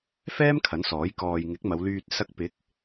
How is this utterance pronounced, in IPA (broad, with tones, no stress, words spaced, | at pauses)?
fɛː˥m kʰɐ˨˥nsɔː˨˥j kɔː˨jŋɪ˨˥k̚ mɐ˨˧wlyː˧t̚ sɐ˧k̚pɪ˨˥k̚